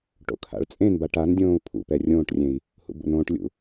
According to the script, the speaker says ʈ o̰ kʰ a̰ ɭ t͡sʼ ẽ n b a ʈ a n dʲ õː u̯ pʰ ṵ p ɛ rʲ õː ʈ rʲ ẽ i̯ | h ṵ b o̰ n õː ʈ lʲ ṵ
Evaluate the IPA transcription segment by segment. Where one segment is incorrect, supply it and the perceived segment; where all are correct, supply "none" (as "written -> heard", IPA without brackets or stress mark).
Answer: none